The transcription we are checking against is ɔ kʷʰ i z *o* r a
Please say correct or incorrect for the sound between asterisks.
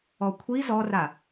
incorrect: ɔ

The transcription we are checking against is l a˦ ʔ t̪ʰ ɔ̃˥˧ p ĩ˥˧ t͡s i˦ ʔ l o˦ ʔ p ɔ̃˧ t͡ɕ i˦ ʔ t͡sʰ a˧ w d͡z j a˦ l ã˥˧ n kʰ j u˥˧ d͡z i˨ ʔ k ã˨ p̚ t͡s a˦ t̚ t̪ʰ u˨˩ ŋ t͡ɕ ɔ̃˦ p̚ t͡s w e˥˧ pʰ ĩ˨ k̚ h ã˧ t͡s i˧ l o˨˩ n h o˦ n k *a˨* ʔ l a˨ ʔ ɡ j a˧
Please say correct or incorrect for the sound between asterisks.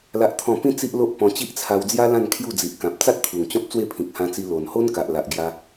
correct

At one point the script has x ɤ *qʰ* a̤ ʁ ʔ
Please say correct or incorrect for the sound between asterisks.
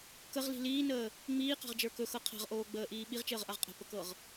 correct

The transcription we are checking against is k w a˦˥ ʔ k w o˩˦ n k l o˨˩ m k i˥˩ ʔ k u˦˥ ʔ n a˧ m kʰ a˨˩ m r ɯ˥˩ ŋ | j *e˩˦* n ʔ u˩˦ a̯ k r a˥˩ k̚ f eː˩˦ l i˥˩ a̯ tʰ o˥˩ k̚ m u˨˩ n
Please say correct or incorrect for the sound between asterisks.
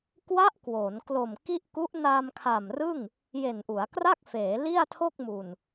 incorrect: e˨˩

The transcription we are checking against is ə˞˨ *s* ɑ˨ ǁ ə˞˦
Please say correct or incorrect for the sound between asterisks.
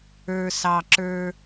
correct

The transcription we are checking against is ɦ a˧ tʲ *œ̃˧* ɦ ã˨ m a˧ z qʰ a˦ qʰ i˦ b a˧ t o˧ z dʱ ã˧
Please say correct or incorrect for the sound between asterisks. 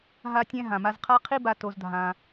incorrect: ɛ̃˧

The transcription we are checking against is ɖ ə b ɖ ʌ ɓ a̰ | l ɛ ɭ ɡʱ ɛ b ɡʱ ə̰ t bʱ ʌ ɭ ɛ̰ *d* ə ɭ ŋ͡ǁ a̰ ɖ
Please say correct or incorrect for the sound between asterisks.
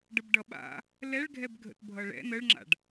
incorrect: n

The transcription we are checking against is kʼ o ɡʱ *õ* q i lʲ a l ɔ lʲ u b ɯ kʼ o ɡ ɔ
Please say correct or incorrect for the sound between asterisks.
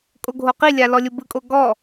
incorrect: o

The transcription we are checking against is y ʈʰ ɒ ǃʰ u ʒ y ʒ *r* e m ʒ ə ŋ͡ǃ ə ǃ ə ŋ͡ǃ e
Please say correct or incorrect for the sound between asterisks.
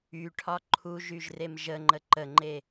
correct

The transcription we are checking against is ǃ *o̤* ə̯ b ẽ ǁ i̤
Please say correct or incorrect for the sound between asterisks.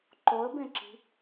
incorrect: o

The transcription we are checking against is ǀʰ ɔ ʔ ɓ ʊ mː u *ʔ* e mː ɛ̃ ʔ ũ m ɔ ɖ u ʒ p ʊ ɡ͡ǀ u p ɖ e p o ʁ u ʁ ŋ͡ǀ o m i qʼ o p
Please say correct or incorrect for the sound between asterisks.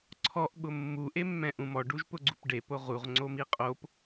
correct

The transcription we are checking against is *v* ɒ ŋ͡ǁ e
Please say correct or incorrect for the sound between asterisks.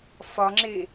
incorrect: f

